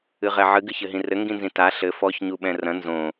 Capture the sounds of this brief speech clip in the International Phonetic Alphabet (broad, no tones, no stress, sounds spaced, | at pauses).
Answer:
ɨ ʁ ɛ ʕ ɨ ɡ ɨ ç ɘ ɦ ĩ r ɘ ŋ ɡ ĩ n z ĩ t a ɬ ɘ f ɔ ç ɲ u ɓ ɛ̃ r ɐ̃ n z õ